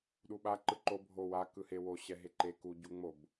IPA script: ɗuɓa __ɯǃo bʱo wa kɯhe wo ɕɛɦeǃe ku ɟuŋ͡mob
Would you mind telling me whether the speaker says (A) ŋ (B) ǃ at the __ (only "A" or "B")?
B